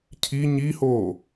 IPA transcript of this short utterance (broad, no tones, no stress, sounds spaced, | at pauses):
cʰ i ɲ i h oː